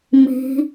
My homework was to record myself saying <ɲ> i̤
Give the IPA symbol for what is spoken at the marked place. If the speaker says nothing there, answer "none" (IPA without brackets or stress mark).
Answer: m